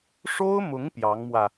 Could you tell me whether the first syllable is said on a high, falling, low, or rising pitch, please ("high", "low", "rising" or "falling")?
high